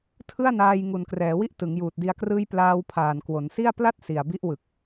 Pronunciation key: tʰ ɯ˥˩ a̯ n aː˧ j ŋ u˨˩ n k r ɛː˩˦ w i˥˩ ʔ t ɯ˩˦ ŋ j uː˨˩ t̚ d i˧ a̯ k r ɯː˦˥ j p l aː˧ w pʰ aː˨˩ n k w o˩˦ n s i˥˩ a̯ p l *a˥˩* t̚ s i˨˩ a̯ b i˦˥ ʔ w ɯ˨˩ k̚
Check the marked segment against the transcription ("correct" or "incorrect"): correct